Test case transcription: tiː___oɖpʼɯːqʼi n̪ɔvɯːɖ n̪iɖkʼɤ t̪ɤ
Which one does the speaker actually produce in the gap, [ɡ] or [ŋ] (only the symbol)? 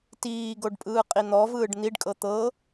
ɡ